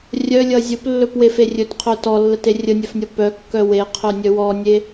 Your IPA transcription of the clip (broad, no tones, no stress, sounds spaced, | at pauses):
rʲ œ lʲ ʌ zʲ ɵ p lː ɵ p w e f e rʲ ɵ t qʰ œ t ɔ lː ə t e rʲ ə nʲ œ f nʲ ʌ p œ kː œ w e qʰ œ nʲ œ w ɔ nʲ e